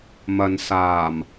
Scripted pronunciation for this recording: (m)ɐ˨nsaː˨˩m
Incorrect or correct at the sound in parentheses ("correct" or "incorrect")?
correct